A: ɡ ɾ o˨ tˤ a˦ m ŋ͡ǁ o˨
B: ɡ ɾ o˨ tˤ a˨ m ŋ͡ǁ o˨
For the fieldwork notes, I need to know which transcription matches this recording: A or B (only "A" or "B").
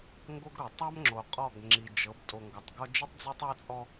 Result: A